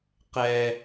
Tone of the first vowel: high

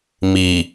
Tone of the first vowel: low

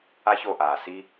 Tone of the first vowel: high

